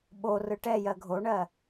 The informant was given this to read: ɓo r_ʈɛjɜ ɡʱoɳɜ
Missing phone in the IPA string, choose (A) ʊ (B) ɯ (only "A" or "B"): B